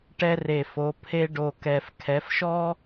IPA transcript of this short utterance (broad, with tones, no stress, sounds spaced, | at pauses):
ʈ ɛ˦ r e˨˩ f o˩˧ pʰ e˦ ɖ o˨˩ k ɛ˨˩ f kʰ ɛ˩˧ f ʃ ɔ˦